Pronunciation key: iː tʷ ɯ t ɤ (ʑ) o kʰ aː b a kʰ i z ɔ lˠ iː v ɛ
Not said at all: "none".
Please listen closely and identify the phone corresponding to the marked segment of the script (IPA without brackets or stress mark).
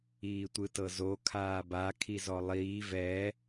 z